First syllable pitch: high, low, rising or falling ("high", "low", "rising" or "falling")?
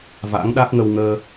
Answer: rising